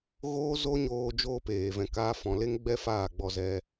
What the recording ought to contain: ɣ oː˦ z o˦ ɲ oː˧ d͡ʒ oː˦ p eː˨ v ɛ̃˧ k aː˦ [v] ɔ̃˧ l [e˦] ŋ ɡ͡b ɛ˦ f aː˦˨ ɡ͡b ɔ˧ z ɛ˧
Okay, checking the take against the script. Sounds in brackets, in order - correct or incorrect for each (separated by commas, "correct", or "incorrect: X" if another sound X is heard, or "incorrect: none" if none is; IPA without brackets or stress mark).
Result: incorrect: f, correct